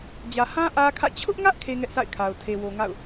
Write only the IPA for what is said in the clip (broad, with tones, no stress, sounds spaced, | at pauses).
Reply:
d͡ʑ ä˨ h ã˦ ʔ ä˦ kʰ ä̰˦˨ t͡ɕʰ ʊ˦ ʔ ŋ ä˦ ʔ kʰ e˦ ŋ ɛ˦ ʔ s a̰˦˨ ɪ̯ kʰ a˨ ʊ̯ tʰ e˨ w o˨ ŋ a̰˦˨ ʊ̯